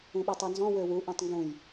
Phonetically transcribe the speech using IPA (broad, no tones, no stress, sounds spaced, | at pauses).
ũ ɓ i tˤ ø n z ɔ̃ w ø w u ʔ ẽ tˤ ŋ ɡ ũ j